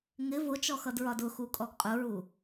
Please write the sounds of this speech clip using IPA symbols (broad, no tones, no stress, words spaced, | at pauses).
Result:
ŋɪ vʊt͡ʃɔxʌdɹɒd ʊxukʼɔɡ qʼʊɹu